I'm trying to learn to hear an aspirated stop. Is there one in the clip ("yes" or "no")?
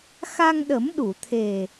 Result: yes